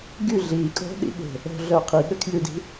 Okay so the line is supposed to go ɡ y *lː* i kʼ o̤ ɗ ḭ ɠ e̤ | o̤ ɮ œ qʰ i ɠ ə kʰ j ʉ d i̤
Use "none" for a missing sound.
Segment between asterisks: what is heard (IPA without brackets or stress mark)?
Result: ɮ